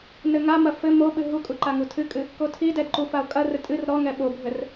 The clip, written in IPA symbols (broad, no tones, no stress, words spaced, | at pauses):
nɘŋamɐ fɘ moɓɨ ɦukʼu ǃaŋutʰɨkʼɨ | kotʰidɛd ǃufao̯kʼɐrɘ tʼɨr ɾɔŋɛ ɓobʱɘr